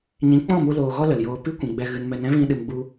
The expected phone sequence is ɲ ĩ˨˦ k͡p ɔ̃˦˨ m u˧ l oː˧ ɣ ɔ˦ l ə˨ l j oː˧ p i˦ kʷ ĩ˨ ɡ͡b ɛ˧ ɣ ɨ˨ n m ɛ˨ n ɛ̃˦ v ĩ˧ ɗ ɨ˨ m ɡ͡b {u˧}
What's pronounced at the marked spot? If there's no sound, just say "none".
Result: u˧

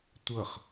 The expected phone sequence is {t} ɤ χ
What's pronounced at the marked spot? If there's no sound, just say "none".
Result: tʷ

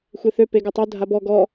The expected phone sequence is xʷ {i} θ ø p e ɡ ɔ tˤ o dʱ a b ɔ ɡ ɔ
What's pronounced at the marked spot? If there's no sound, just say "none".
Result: e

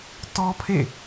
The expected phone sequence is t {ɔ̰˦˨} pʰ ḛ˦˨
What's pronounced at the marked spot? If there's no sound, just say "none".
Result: ɔ˦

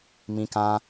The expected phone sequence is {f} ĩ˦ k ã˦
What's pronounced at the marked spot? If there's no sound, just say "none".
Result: m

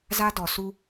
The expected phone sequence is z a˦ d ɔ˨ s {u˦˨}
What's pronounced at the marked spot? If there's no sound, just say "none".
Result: u˦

